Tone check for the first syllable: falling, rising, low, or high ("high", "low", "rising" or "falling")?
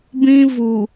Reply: high